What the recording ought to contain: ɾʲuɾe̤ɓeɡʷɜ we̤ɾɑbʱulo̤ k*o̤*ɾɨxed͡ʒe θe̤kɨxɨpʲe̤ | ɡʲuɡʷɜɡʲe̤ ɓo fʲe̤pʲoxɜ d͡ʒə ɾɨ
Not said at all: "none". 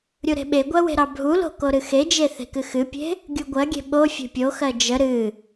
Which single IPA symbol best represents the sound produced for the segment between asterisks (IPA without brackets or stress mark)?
o